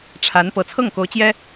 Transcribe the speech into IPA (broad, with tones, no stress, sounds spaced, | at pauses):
ʈ͡ʂʰ a˧˥ n p ɤ˨˩ t͡sʰ ɤ˥˩ ŋ k o˧˥ ʊ̯ t͡ɕ j ɛ˥